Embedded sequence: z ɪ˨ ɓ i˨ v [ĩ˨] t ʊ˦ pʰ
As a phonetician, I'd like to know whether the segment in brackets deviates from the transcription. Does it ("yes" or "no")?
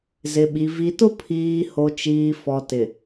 yes